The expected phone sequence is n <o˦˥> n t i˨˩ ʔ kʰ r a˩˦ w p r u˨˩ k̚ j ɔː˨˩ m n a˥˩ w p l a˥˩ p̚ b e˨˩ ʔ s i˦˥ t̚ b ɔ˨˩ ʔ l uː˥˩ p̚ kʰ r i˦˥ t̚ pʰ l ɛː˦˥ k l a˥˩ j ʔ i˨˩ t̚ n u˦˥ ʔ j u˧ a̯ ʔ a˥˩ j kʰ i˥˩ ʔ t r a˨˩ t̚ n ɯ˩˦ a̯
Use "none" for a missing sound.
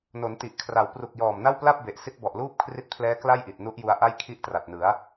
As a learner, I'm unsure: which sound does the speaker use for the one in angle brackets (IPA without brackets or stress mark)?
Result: o˩˦